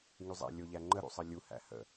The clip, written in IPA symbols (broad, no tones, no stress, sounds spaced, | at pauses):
ŋ y zˤ æ̰ lʲ o ʎ æ ŋ͡ǃ ə ɾ ṵ sˤ ə lʲ u h æ̰ h ə̰